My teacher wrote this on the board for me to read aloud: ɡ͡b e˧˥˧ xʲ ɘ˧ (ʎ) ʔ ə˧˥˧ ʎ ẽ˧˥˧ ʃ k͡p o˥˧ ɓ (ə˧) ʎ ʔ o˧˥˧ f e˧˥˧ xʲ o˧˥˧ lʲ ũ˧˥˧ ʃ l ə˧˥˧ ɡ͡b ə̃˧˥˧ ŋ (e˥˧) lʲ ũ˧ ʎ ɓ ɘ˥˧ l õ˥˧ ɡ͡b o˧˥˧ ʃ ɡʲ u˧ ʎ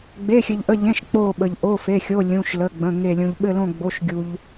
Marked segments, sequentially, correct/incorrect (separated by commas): correct, correct, correct